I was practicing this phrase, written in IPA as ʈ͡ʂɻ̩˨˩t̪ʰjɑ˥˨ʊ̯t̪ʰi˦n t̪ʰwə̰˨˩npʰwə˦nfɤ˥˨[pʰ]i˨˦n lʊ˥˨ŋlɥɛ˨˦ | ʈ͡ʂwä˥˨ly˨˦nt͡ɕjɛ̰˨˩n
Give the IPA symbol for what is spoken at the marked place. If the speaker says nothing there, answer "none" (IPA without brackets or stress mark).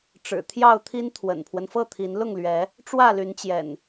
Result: t̪ʰ